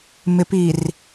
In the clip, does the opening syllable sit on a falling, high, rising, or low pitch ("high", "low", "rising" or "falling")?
low